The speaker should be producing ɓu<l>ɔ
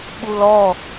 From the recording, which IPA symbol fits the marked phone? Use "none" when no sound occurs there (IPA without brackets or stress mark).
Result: l